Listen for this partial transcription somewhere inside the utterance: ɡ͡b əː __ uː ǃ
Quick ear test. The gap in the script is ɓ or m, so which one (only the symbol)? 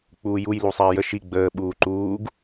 ɓ